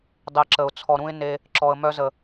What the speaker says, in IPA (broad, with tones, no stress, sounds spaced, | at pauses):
dˤ e˧ ǁ ə˨ ʊ̯ t͡sʰ ɔ˨ ɾ ũ˧ ɪ̯ n e˧ | ǁ ɔ˨ ə̯ m œ˧ z ə˨